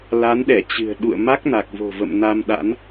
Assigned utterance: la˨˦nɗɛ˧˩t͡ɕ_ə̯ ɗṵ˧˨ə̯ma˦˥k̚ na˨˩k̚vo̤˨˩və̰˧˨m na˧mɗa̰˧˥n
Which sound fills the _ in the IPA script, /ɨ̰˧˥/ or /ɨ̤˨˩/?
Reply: ɨ̤˨˩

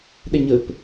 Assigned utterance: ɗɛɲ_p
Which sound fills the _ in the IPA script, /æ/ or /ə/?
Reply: ə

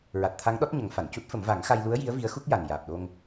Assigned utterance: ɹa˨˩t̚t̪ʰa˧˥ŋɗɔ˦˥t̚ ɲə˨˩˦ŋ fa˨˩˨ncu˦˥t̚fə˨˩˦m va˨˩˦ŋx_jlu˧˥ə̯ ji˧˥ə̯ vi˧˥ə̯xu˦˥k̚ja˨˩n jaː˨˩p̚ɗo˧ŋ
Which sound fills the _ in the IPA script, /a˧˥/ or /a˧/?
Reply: a˧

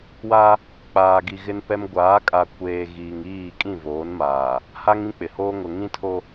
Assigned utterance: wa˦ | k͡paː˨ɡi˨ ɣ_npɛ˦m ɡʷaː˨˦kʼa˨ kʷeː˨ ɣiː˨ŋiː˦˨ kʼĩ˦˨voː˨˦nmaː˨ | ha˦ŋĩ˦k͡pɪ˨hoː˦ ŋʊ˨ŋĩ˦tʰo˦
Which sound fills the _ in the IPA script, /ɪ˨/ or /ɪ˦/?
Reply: ɪ˦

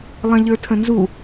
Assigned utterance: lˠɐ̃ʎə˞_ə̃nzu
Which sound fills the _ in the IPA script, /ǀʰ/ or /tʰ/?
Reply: tʰ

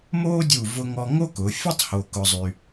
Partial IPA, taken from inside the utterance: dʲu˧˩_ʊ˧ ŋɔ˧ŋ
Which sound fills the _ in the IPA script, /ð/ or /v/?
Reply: v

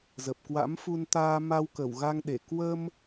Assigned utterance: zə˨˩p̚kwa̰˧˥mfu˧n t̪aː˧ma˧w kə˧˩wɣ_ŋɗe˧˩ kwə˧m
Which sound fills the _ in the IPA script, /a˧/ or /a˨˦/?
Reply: a˧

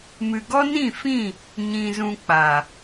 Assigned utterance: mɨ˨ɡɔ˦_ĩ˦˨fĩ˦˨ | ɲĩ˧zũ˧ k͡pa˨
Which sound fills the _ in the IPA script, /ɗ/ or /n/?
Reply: n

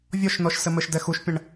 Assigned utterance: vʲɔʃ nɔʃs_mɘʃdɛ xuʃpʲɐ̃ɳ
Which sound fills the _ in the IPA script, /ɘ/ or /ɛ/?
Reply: ɘ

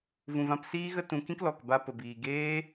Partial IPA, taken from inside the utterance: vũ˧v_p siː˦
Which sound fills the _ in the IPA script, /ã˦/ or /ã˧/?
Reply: ã˦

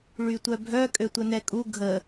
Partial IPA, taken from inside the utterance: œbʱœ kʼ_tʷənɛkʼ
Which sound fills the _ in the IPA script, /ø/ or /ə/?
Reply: ø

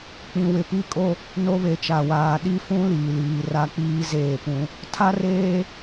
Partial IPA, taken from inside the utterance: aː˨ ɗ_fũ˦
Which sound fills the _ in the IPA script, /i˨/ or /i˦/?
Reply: i˦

